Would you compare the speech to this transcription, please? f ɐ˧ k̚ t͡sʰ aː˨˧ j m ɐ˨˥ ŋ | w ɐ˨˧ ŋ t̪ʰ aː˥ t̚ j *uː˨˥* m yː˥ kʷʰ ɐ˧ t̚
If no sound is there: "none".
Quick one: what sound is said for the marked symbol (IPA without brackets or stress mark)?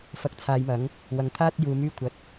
uː˨˧